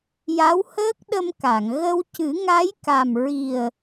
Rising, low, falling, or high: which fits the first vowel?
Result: rising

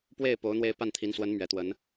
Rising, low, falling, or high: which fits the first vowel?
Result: falling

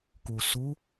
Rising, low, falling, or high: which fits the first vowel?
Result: low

